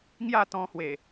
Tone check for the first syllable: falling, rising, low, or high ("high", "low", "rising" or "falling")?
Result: falling